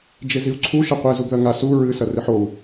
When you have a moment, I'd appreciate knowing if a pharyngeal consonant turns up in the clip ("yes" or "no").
yes